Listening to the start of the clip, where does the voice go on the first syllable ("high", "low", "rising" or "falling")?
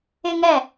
high